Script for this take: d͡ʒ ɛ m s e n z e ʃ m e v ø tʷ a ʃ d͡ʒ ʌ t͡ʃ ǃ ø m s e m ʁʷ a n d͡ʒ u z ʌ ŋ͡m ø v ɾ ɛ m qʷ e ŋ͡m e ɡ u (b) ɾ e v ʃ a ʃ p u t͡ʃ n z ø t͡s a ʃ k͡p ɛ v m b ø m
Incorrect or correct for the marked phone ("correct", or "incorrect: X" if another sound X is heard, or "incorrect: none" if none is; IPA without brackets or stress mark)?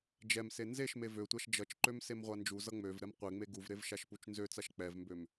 incorrect: v